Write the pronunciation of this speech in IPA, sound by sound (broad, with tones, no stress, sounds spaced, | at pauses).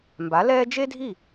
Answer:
m b a˩˥ l ɛː˥ d͡ʒ e˥ dʱ i˥˩